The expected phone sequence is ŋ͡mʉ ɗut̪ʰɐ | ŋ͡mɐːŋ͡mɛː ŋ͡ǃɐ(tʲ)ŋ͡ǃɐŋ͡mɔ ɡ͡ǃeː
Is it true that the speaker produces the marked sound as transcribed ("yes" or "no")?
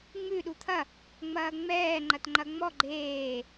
no